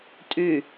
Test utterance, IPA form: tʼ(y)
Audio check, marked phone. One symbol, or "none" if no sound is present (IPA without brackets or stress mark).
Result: y